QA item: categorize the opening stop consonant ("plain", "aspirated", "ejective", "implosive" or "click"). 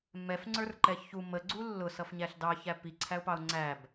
click